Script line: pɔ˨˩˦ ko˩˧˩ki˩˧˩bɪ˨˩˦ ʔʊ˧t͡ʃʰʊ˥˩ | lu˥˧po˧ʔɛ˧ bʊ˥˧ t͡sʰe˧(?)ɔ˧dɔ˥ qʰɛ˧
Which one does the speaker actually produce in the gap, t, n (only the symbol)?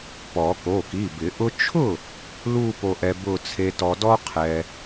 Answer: t